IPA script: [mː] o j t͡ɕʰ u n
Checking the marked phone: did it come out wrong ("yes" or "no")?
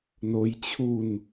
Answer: yes